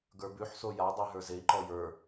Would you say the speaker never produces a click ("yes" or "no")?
no